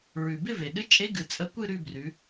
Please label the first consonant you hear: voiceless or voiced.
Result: voiced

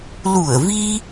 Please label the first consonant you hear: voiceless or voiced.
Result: voiced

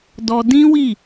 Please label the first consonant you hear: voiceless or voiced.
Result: voiced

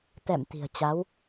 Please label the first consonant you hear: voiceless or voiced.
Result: voiceless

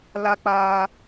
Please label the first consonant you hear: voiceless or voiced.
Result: voiced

